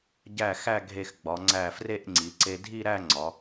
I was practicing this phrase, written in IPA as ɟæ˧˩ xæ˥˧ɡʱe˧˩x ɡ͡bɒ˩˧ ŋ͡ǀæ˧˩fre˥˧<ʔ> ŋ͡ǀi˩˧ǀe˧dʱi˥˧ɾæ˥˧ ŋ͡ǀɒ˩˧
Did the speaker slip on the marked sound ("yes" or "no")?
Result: no